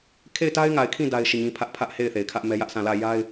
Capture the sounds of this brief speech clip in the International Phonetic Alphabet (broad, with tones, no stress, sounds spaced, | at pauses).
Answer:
kʰ e˦˨ ɪ̯ t a˦ ɪ̯ ŋ a˨ ɪ̯ kʰ ĩ˦˨ d a˦ ɪ̯ ʃ i˦˨ ɲ ĩ˦ pʰ ä˦ ʔ pʰ ä˦ ʔ h e˦˨ ɪ̯ θ e˨ ɪ̯ kʰ ä˦ ʔ m ɛ˦ j ä˦ ʔ s ã˦˨ l ä˦˨ j a˦ ɪ̯